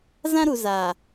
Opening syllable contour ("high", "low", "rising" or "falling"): high